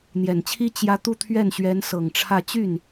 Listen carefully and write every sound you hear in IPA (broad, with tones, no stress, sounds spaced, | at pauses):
n̪ j ɛ˨˩ n t͡ɕʰ i˥ t͡ɕ j ä˧˥ t̪ u˥˧ t̪ʰ ɥ ɛ˥˩ n ɕ ɥ ɛ˧˥ n s ɤ˨˩ ŋ ʈ͡ʂʰ ä˥˧ t͡ɕ y˥˩ n